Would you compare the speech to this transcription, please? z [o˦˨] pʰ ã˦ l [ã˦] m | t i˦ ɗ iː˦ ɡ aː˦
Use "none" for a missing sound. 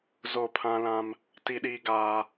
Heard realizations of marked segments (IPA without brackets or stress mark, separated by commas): o˦˨, ã˦